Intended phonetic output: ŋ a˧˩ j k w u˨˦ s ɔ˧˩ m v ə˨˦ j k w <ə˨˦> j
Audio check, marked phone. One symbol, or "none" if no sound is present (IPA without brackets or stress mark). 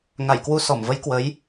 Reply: ə˨˦